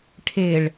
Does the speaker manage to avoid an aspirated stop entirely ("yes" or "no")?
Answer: no